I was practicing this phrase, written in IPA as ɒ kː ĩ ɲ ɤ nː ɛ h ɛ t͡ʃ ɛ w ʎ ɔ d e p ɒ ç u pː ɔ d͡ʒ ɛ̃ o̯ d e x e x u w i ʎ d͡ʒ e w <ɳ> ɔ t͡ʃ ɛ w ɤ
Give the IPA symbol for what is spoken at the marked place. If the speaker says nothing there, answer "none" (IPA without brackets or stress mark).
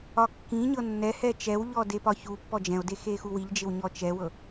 ɲ